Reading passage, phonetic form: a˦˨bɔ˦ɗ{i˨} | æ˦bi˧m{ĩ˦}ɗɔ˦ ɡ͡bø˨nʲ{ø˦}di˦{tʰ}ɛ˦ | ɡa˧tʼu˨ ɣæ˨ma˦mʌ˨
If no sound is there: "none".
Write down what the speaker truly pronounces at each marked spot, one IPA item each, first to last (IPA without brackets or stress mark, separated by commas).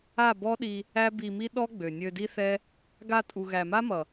i˧, i˦, ø˧, θ